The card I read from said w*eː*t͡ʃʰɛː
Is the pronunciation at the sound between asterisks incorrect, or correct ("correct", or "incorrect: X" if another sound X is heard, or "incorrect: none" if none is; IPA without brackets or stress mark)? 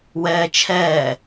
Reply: incorrect: ɛː